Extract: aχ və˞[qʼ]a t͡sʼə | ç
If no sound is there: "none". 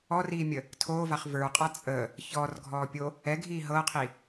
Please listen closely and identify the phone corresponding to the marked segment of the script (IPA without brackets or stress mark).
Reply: qʼ